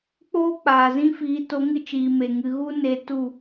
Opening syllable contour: high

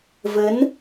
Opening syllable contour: rising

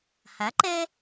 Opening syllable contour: rising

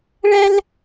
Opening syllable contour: high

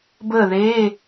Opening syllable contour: falling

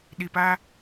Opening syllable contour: low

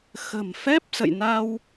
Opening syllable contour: low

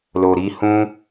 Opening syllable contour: low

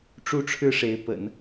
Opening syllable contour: falling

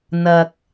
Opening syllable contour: low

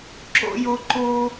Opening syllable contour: high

